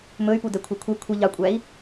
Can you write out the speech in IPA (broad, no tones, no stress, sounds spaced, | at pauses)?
m ɵ y̯ p u d ɛ kʷʰ œ kʷʰ ɛ kʷʰ i ʎ ɑ kʷʼ æ i̯